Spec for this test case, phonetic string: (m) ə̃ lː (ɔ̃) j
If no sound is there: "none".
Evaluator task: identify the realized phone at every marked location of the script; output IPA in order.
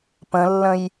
p, ə̃

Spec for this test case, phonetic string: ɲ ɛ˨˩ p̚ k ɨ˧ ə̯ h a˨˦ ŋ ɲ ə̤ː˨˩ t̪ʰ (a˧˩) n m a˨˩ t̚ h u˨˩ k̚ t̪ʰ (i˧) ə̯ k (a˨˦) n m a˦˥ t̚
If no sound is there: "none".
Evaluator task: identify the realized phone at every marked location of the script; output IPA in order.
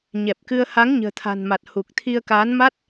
a̤˨˩, i˧, aː˨˦

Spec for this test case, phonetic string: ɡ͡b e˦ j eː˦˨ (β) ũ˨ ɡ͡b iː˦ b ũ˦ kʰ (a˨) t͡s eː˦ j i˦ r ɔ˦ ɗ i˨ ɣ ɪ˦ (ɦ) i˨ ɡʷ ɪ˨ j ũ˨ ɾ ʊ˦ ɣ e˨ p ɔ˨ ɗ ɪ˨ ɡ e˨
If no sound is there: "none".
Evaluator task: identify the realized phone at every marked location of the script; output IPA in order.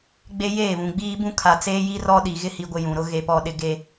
β, a˨, h

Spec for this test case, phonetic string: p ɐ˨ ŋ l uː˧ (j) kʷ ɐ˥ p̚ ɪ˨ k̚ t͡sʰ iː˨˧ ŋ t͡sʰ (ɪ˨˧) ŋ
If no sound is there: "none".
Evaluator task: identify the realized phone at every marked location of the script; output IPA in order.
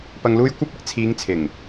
j, ɪ˨˩

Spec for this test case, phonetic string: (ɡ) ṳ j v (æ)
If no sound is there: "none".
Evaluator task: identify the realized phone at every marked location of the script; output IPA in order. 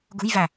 ɡ, æ

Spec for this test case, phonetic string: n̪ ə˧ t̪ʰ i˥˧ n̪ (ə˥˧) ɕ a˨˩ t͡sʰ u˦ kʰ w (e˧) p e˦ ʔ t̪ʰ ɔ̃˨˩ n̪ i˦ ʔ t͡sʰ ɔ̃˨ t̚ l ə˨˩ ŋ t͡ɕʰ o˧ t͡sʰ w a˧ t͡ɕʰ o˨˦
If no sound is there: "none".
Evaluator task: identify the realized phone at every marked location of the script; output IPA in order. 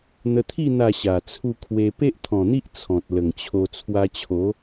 a˥˧, e˧

